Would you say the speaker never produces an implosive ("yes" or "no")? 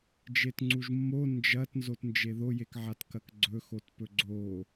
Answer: yes